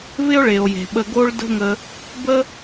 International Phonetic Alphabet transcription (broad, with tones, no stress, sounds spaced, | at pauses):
v ɪ˦ o̯ ɭ e˨ o̯ j e̤˨ ɓ ə˧ ɡ o˦ ɭ d ə̤˦ ŋ ə˧ | b ə˦